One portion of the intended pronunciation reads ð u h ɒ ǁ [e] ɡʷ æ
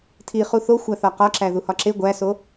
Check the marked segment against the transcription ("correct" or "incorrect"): correct